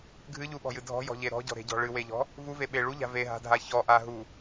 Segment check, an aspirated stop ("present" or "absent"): absent